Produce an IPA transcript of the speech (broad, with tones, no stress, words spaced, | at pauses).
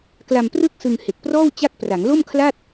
kla˧mprɯ˥˩k̚sɯ˧ŋ he˨˩k̚prɔː˥˩w t͡ɕa˥˩k̚pra˩˦ŋ lo˥˩mkʰla˥˩t̚